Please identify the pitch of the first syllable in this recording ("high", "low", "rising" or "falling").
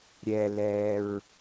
low